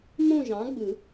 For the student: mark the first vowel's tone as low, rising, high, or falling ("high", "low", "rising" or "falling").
falling